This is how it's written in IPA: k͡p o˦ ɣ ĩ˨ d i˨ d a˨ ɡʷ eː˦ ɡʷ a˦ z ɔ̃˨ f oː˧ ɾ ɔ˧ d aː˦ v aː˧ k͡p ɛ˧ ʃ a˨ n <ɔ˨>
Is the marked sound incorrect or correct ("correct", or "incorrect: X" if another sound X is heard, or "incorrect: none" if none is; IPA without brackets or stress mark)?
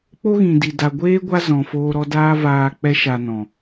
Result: incorrect: ɔ̃˨